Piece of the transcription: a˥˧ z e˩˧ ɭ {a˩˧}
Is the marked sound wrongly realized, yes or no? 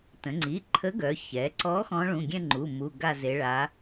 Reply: no